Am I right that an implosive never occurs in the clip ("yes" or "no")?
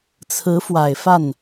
yes